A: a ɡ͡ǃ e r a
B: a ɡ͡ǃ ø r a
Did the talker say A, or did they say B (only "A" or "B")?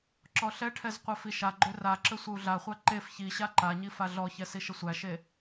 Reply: B